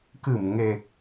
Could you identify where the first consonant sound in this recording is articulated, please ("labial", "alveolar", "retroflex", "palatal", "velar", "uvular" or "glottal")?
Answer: velar